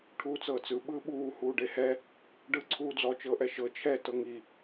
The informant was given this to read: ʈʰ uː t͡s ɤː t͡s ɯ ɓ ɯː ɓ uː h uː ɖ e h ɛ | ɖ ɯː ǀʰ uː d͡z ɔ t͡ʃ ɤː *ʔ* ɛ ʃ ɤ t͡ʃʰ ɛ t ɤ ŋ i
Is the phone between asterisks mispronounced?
no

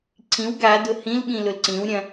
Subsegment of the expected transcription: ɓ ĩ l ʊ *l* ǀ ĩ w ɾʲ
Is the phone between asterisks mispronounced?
no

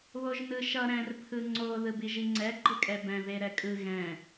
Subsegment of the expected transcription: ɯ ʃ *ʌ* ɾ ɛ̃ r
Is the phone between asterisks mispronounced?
no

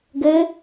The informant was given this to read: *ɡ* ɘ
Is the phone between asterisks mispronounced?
no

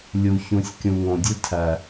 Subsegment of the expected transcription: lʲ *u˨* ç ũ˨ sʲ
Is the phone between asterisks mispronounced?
no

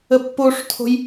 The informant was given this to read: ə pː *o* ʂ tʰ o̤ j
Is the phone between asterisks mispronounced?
no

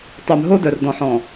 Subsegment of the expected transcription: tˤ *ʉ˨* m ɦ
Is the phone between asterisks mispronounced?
no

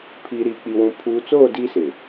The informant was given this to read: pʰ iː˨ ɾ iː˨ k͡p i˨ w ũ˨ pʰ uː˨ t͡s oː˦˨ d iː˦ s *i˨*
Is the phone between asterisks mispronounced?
yes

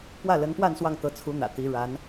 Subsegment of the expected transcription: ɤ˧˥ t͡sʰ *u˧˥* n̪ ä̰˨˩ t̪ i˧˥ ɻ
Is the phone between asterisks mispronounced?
no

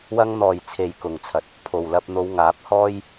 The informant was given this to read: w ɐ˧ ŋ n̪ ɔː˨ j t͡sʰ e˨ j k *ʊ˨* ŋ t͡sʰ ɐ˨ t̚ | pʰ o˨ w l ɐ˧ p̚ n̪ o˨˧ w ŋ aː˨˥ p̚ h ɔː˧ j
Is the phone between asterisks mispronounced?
no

